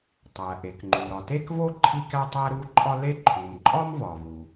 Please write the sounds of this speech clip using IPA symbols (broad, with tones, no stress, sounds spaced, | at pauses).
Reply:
tˤ æ˩ ʔ e˩ k ŋ͡ǃ u˩ ɾ ɒ˩ t e˥ k v o˥ ǃʰ i˥ k æ˥ tˤ æ˥ ɾ u˥ ǃʼ ɒ˥ l e˥ ǃʰ u˩ m ǃʼ ɒ˥ m v ɒ˩ v u˩